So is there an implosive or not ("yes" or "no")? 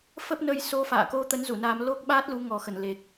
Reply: yes